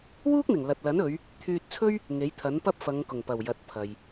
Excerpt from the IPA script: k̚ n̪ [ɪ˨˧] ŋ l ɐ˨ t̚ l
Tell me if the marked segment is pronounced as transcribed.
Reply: no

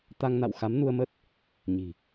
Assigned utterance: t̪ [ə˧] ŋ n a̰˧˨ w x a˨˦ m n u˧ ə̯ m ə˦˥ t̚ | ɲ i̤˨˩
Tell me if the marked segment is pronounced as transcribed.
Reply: no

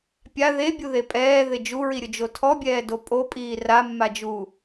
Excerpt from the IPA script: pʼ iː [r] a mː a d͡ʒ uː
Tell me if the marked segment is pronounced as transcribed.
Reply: yes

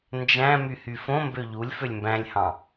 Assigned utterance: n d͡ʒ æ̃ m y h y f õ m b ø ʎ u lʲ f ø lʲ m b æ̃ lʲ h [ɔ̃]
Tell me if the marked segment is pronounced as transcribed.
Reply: no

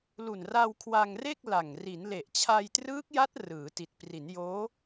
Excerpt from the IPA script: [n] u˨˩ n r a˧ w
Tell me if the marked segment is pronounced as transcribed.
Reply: no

